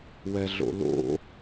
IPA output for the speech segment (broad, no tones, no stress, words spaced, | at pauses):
wɛɮo̰lo̰